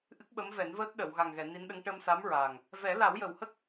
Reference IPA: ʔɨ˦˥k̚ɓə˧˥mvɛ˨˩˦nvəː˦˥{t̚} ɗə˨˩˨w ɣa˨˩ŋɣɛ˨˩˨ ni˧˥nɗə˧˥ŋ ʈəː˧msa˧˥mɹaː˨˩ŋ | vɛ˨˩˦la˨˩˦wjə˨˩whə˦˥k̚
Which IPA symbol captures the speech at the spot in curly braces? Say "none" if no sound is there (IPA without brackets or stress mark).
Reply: t̚